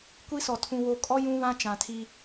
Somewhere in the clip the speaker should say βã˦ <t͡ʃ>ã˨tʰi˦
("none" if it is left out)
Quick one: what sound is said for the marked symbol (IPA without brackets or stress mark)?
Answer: t͡ʃ